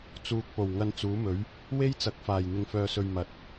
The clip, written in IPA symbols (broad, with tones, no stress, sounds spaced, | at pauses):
t͡s uː˨ k̚ p o˨˩ w ŋ ɐ˧ n t͡s uː˨˥ m ɵ˨˥ ɥ | w e˥ j t͡s ɐ˨ k̚ f aː˨˩ j n̪ ɪ˧ ŋ f œː˧ s ɵ˧ ɥ m ɐ˨˥ t̚